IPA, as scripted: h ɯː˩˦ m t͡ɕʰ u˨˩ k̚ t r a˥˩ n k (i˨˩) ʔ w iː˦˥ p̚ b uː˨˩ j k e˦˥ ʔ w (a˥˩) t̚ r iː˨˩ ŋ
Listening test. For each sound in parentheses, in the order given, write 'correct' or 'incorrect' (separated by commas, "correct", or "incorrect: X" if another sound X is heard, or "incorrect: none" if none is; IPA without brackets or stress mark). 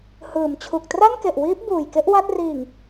incorrect: e˨˩, correct